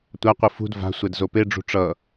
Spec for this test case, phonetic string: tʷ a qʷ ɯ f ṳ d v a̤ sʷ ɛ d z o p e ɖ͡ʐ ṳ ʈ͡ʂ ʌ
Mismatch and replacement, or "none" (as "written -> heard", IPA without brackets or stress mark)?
none